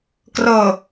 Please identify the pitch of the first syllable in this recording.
low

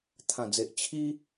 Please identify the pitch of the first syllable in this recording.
low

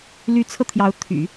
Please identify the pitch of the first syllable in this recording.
rising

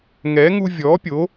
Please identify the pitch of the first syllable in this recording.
rising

